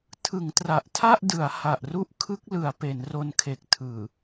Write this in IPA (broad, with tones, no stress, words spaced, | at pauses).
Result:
tʰɯ˩˦ŋtra˨˩ʔtʰa˥˩ʔdɯ˩˦a̯ ha˨˩ʔru˥˩ʔ kʰɯ˦˥k̚lɯ˩˦a̯ pe˩˦nro˧nkʰe˨˩k̚ tʰɯː˨˩